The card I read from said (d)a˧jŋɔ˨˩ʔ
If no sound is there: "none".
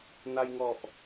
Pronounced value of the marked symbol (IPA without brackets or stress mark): n